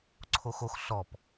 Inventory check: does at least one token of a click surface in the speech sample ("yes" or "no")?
yes